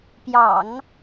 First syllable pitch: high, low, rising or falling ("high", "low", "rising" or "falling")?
low